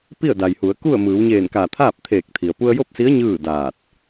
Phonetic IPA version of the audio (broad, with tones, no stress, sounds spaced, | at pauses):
p i˥˨ ə̯ d a˩ j h u˩˧ ə̯ k u˥˨ ə̯ m ɯː˩˧ w ɲ eː˧˩ n k a˧˩ t̪ʰ aː˥˨ p̚ t̪ʰ eː˧˩ k̚ t̪ʰ i˩ ə̯ p u˧ ə̯ j o˥˨ p̚ s i˧˥ ə̯ ɲ ɯː˥˨ d aː˧˩ t̚